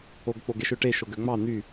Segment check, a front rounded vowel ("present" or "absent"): present